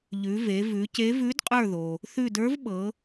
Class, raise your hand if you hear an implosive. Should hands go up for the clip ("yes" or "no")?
yes